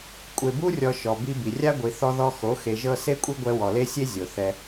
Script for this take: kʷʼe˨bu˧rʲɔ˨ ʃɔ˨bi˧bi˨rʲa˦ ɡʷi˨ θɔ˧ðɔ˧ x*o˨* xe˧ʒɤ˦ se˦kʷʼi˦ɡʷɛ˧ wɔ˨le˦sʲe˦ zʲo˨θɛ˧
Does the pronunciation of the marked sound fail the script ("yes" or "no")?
yes